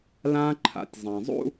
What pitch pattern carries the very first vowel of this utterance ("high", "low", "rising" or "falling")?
high